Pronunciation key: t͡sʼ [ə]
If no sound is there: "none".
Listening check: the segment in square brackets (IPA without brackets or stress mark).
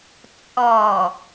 ɔ